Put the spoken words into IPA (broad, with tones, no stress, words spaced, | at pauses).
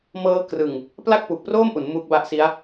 mɤː˦˥krɯ˨˩ŋ | pla˥˩k̚pu˨˩k̚proː˥˩mʔu˩˦n mu˦˥k̚ba˦˥ʔsi˦˥a̯